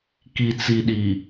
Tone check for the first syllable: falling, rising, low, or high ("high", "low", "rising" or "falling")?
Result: low